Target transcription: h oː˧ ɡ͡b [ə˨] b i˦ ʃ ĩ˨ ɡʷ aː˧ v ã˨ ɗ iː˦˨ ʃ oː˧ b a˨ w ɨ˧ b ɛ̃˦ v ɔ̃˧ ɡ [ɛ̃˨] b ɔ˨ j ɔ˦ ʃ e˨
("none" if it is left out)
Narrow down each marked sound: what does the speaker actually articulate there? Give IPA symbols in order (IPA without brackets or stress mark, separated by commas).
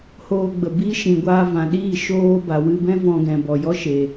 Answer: ə˨, ɛ̃˨